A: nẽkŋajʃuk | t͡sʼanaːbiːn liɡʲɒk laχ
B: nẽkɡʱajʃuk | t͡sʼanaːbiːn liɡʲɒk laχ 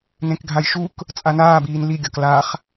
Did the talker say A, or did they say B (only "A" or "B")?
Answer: B